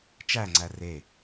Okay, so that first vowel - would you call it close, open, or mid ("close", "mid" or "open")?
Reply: open